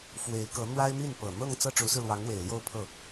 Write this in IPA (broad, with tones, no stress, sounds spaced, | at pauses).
f w e˧˥ ɪ̯ k ɤ˧˥ n̪ w a˥ ɪ̯ m i˥˩ n p ɤ˨˩ n̪ ɤ˥˧ ŋ t͡s ɤ˥˩ ʈ͡ʂ u˧˥ s ɹ̩˧ l w ɑ˧˥ ŋ w e˨˩ ɪ̯ l j o˥˧ ʊ̯ pʰ ɤ˥˩